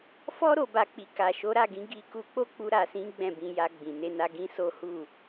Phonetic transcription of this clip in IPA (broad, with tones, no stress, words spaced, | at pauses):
fɔ˦ ɾo˧ba˧k͡pi˨ ka˨ʃo˨˦ɾa˦˨ɡĩ˧ ɡi˧ ku˧k͡po˦k͡pu˧ ɾa˨sĩ˨˦ ɡ͡bɛ̃˦˨bĩ˧ja˧ ɡ͡bĩ˨ ne˧na˧ ɡĩ˦so˦ hu˦˨